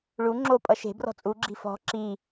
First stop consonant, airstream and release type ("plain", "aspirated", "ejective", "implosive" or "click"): click